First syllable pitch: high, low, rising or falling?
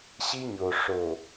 high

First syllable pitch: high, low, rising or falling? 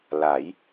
rising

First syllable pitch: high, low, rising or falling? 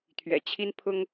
low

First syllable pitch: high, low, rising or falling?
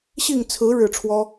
falling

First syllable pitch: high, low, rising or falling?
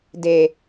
low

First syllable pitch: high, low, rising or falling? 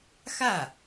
falling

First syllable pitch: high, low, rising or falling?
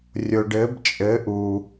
low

